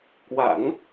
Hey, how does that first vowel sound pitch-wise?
low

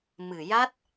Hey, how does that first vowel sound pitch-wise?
low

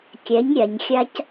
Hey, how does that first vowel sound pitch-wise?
rising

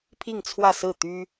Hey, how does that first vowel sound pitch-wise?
falling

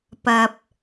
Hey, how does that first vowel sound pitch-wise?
low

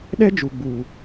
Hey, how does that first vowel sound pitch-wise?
high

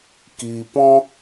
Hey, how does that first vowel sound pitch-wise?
low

